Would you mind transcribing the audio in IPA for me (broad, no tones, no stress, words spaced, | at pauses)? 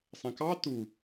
sˤɛ̃kɑ tu